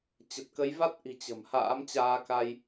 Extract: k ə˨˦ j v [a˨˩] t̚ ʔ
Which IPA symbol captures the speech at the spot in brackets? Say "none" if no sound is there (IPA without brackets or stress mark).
a˦˥